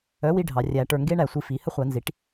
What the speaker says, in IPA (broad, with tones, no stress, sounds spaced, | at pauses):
œ˩˥ w i˦ ɖʱ ɑ˩˧ rʲ æ˩˧ ʈ ə˞˨˩ ŋ ɡ e˦ ɳ æ˧˩˧ sʷ i˨˩ f i˩˧ h ə˦ χʷ a˧˩˧ n z i˩˥ ʈ